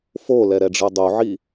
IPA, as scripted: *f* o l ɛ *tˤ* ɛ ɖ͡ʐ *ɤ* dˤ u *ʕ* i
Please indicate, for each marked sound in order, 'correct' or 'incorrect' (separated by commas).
correct, incorrect, incorrect, correct